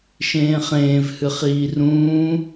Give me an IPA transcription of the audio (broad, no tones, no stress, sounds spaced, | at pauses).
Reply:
ʃ ẽː χ ẽː v h ɨ χ iː r ũː